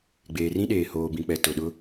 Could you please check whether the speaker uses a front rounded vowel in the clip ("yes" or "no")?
no